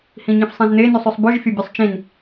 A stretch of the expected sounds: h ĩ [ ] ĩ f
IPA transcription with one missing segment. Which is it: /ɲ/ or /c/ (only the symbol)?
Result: ɲ